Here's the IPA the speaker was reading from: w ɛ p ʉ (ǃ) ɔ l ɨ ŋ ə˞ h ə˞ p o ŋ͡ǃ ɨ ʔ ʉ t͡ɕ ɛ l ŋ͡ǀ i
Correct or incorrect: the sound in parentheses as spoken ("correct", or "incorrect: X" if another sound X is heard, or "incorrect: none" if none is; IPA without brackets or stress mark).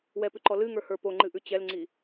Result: correct